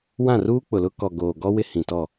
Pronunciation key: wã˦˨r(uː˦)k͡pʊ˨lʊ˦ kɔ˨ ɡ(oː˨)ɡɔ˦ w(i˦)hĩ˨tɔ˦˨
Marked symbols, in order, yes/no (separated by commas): yes, yes, no